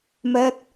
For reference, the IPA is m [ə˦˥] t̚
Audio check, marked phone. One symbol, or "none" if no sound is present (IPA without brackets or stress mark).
ɛ˦˥